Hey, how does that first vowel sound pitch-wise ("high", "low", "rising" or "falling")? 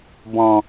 low